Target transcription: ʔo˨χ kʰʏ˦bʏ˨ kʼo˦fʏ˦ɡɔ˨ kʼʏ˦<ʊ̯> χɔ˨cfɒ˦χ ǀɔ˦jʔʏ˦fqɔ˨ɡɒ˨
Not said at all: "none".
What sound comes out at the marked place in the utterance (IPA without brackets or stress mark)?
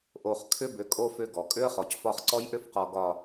ə̯